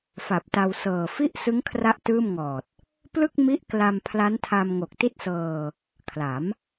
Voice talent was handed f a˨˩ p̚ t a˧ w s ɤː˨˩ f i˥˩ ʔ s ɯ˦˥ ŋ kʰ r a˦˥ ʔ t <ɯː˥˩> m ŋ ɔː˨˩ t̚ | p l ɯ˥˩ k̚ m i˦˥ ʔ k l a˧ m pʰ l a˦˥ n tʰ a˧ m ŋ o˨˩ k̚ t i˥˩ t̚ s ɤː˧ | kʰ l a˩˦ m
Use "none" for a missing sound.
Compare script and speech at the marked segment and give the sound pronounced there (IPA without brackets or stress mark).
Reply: ɯː˥˩